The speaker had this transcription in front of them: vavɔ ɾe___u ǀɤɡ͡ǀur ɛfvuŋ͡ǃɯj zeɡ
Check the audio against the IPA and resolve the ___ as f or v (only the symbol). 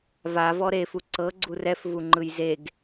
f